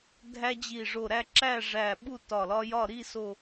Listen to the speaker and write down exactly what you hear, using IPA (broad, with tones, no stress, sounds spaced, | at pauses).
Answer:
dʱ æ˦ d͡ʑ i˧˩ ʐ o˧˩ ɾ æ˥˨ ǁ æ˥˨ ʐ æ˧˩ ɓ u˥˨ t ɒ˧˩ l ɒ˦ j ɒ˥˨ ɾ i˥˨ s o˧˩